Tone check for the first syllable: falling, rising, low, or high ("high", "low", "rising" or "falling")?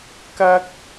high